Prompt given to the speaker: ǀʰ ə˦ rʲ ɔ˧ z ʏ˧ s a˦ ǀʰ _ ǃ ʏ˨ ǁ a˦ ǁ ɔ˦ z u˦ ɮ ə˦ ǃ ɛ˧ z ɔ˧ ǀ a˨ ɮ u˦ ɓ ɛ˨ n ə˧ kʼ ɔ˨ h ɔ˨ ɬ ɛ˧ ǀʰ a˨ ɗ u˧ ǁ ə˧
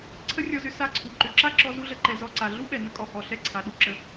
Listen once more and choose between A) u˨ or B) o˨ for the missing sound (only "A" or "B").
A